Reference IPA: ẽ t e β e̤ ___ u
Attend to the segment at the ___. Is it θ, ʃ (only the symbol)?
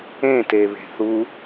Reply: θ